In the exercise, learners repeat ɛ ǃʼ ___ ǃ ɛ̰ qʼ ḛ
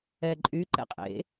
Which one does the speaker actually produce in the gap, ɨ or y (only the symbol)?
y